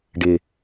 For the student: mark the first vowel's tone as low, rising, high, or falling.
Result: low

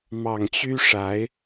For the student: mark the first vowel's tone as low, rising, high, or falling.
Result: low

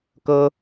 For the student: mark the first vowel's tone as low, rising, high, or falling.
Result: high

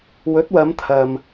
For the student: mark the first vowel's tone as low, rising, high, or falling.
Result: rising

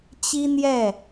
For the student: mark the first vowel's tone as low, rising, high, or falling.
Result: high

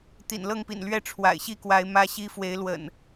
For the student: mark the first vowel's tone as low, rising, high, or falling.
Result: low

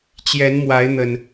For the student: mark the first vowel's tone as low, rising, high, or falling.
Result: rising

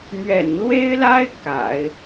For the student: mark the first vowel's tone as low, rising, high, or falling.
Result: low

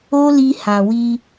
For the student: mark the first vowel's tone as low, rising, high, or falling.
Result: high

